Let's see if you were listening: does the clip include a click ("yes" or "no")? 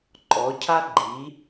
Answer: yes